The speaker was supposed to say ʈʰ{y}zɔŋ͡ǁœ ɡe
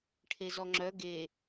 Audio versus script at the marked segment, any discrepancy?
yes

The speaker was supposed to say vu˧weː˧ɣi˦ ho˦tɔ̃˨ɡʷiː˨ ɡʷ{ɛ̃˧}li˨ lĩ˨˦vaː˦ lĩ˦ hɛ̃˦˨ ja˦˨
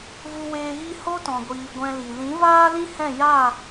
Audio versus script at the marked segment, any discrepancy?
no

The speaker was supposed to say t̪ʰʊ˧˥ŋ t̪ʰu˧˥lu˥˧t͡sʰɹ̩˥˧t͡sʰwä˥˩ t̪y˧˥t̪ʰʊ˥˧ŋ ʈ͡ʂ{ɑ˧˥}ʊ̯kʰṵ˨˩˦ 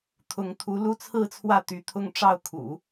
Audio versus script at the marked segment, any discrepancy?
yes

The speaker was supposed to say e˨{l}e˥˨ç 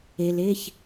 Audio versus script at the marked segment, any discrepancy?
no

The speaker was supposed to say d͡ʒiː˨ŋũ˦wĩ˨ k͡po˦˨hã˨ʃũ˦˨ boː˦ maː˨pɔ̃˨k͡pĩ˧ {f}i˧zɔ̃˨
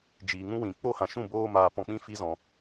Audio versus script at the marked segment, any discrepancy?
no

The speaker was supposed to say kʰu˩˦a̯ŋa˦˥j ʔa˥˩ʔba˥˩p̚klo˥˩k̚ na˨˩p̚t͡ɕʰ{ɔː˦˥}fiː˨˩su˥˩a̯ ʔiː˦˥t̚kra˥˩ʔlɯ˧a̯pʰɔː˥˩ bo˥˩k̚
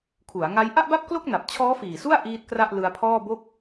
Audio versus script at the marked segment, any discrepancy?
no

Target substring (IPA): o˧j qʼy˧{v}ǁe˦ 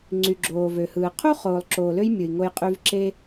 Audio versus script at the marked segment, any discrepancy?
no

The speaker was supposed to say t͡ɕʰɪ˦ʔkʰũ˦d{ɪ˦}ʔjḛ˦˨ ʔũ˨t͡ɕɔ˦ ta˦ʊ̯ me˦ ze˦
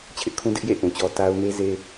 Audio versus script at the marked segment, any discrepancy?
no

